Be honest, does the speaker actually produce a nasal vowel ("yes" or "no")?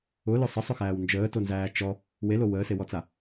no